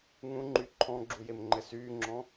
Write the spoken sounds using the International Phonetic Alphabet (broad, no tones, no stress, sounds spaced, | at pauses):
ŋ ũ ŋ͡ǃ y ǃʰ ɔ̃ ɡ͡ǁ u j e m ŋ͡ǃ ɘ s yː ŋ͡ǁ ɔ̃